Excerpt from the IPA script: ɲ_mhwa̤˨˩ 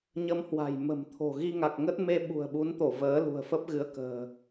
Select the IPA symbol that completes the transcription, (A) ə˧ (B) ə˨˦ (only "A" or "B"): A